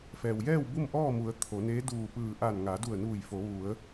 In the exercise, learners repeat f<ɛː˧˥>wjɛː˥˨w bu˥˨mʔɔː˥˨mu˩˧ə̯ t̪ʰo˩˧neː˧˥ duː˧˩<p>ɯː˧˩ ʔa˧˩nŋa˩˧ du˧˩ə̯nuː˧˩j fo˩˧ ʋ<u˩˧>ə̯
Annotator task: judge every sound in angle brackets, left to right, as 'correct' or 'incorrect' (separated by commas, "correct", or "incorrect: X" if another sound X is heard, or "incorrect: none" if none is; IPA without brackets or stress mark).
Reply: incorrect: ɛː˩, correct, correct